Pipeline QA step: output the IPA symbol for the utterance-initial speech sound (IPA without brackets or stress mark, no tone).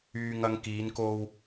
yː